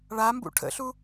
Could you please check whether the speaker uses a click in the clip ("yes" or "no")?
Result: no